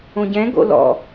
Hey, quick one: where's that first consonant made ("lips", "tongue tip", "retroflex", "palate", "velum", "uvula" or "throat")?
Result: palate